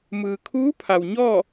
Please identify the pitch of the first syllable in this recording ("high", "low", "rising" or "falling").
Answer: low